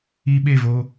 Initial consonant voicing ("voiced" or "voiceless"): voiced